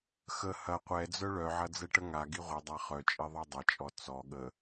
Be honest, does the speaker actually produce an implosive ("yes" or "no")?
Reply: yes